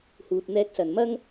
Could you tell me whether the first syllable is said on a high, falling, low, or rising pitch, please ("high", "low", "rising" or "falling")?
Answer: low